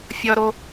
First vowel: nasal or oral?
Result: oral